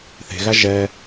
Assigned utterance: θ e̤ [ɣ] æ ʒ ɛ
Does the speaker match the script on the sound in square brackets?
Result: yes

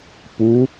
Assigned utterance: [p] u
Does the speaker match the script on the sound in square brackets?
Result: yes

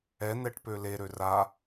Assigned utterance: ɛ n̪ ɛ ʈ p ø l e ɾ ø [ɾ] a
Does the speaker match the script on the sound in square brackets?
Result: no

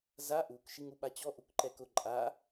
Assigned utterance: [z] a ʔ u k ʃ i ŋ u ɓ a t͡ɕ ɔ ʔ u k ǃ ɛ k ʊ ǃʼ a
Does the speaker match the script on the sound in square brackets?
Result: yes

